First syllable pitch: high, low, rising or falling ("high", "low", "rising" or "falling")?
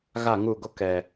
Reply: falling